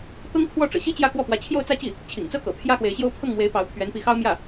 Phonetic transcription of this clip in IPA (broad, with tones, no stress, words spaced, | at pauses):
t̪ɤ˥ŋkʰwɔ˥˩ʈ͡ʂɤ̰˨˩ɕi˥ t͡ɕjä˥˧kwɔ˥˩ pwä˧˥t͡ɕʰjo˥˧ʊ̯t͡sä˥˧t͡ɕi˥˩ | t͡ɕʰḭ˨˩ŋt͡sɤ˥˩kɤ̰˨˩ pʰjä˥xwe˧˥ɪ̯ɕjo˥ʊ̯ pʰɤ˥˩ŋmwe˧˥ɪ̯ pɑ˧˥ʊ̯pʰɥɛ˧˥npi˧˥xɑ˥ʊ̯ mjä˥˩